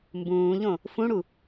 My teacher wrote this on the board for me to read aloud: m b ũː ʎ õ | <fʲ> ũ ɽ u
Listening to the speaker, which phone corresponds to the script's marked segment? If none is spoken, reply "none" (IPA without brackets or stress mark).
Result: f